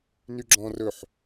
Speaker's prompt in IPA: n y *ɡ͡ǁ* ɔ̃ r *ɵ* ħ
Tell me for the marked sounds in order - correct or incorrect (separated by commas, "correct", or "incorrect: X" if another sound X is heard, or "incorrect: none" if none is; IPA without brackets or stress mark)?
correct, correct